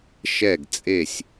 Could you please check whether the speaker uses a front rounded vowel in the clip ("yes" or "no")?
no